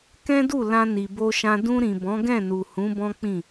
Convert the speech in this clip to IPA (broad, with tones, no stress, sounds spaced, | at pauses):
k ɛ̃˦ d u˦˨ l ã˧ n i˨ b o˧ ʃ ã˧ d ũ˧ ɾ ĩ˨ b ɔ̃˨˦ ɡ ɛ̃˦˨ n u˨ h ũ˨˦ b ɔ̃˦ k͡p ĩ˦˨